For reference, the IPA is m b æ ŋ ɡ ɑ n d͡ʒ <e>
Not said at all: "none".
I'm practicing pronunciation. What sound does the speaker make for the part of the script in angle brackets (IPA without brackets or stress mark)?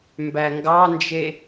e